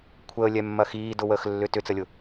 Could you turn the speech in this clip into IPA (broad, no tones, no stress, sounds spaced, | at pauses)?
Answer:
kʷʰ əː lʲ ɛ mː ɐ x iː d ʊ w əː x lː ʏ t ʏ t͡s ə lʲ ʊ